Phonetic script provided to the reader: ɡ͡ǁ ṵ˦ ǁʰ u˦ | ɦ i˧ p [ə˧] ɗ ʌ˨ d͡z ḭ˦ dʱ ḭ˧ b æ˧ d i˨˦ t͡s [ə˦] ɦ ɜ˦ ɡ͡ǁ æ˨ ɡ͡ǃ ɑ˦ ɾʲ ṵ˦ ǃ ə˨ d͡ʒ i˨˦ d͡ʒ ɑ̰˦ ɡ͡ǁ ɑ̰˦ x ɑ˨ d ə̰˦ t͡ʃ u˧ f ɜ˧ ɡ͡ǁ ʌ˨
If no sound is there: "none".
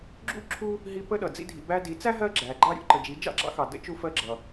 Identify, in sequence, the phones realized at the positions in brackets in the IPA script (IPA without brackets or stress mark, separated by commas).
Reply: ə˧, æ˦